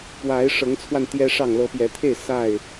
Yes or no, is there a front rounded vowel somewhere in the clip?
no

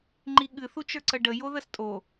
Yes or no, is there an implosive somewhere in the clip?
yes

